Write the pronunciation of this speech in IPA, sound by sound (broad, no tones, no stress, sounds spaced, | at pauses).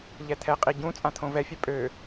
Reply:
ʎ ɛ t̪ʰ ɛ qʼ i ɟ ũ t͡sʼ ã t̪ʰ õ v ɛ fʲ œ pʼ ø